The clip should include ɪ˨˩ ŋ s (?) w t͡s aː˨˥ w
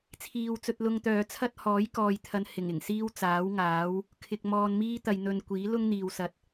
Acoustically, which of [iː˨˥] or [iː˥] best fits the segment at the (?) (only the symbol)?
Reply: iː˥